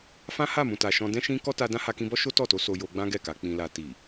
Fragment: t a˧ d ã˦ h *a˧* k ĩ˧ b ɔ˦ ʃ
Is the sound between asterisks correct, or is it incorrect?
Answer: correct